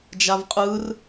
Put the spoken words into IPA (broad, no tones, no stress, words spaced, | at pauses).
d͡ʒavqʼɯr